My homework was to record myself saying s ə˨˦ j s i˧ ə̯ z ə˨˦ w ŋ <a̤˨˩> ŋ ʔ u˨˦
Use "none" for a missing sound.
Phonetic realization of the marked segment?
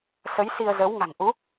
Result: a̤˨˩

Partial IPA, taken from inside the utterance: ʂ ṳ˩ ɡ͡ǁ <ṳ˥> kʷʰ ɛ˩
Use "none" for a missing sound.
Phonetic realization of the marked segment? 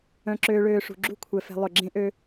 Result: ṳ˥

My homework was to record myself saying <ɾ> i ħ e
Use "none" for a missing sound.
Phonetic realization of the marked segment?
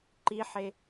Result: ǃ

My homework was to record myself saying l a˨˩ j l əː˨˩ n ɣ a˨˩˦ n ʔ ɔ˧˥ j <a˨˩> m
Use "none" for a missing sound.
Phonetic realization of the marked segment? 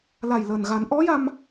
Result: a˧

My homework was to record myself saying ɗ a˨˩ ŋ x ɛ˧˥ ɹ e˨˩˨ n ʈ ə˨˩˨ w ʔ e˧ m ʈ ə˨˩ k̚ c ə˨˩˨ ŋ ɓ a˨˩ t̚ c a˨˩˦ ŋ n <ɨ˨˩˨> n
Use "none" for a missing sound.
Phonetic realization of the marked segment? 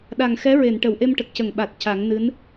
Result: ɨ˧˥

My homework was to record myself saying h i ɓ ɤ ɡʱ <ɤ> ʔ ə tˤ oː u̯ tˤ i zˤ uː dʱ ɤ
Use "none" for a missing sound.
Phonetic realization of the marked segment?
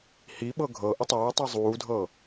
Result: ɤ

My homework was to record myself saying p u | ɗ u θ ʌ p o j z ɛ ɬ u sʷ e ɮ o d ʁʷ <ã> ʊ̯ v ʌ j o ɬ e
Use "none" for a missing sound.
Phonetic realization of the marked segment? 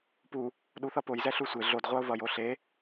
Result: a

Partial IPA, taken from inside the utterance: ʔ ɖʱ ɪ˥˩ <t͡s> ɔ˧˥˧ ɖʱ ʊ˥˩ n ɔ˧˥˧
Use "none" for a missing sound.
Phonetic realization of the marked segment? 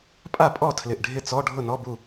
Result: t͡s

